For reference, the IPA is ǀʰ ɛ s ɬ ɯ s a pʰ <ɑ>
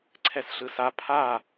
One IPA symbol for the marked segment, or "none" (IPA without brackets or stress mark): a